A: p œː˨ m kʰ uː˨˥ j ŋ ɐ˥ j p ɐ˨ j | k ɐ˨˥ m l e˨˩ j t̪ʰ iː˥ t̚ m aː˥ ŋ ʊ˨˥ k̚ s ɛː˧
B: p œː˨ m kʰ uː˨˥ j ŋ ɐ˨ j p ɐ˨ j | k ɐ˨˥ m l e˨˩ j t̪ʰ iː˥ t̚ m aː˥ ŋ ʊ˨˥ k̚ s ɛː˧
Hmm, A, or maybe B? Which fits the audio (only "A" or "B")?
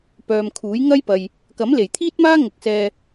A